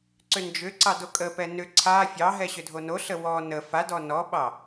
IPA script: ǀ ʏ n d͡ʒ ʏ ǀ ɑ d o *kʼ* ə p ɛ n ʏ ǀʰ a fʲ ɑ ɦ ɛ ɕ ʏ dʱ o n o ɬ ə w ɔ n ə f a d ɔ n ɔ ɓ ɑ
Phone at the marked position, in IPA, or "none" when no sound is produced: kʼ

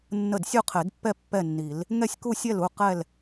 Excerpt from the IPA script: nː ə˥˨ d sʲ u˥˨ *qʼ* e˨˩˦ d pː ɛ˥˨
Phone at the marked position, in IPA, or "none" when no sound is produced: qʰ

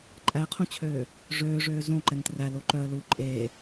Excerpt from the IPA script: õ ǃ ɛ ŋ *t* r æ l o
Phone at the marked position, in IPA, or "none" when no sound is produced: t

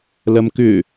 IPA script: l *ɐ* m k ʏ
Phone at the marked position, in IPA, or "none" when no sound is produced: ɐ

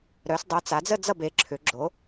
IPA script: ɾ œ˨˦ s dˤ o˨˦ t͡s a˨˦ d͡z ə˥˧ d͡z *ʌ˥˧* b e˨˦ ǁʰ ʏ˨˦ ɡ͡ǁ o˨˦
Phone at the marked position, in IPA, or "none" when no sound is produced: ʌ˥˧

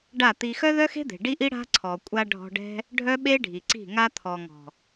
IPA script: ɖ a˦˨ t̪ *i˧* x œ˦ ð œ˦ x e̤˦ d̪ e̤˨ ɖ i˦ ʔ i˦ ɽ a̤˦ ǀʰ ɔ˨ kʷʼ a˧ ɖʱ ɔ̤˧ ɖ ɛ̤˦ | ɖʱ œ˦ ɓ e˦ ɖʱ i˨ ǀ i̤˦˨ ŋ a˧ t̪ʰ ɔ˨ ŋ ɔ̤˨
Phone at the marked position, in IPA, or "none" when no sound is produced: i˧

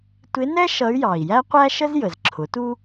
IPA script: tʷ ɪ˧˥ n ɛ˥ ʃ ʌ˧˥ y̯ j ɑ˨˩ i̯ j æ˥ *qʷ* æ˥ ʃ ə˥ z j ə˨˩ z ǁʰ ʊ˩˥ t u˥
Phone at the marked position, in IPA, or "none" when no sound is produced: qʷ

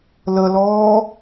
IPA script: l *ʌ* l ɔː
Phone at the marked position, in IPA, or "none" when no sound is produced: ə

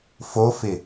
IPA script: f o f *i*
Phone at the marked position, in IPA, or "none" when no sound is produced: ɪ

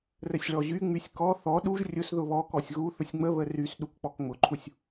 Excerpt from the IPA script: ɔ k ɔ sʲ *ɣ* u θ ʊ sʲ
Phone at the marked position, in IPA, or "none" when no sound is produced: ɣ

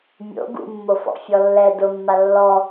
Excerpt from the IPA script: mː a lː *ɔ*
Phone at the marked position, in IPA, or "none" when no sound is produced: ɔ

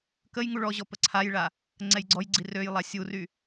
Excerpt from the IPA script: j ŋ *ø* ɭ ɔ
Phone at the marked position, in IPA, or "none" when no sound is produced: u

